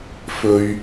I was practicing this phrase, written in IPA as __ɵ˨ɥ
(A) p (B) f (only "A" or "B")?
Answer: B